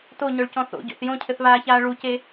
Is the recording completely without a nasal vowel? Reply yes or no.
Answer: no